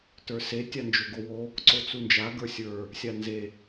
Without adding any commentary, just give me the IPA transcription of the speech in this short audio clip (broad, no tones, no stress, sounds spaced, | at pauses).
t ə˞ s e tʲ a n d͡ʒ o ɡ o w o | ǀ o t͡s u n d͡ʒ a ɡ ə˞ sʲ ə˞ | sʲ a n z e